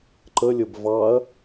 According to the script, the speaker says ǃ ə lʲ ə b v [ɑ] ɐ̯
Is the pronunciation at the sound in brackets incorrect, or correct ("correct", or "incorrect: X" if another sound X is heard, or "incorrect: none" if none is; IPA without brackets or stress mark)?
correct